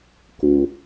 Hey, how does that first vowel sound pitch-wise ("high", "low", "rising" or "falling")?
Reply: low